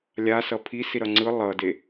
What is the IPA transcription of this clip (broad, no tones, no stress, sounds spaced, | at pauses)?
lʲ a s ʌ pʰ i s i ɾ ʌ ŋ͡ǀ ɯ lˠ ʌ d e